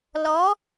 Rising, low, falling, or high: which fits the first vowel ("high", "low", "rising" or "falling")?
rising